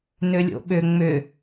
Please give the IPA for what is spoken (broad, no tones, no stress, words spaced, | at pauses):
nʏlʲo̰ɓʏ ŋ͡mʏ